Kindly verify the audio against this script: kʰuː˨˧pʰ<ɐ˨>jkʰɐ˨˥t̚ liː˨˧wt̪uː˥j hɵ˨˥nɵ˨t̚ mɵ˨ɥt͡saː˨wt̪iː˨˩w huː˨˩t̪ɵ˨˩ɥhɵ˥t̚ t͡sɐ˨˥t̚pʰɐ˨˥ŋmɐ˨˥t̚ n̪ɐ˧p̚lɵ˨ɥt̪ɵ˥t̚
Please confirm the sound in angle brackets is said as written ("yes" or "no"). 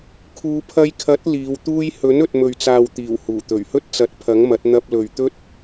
no